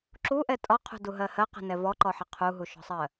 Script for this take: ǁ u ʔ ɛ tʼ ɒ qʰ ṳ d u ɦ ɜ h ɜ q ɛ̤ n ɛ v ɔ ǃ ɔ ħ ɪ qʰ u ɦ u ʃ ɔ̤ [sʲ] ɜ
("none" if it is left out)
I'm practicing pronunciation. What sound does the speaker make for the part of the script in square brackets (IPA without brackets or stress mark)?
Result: sˤ